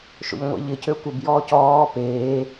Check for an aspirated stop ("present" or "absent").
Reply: absent